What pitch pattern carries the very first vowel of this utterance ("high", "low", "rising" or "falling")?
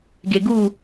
low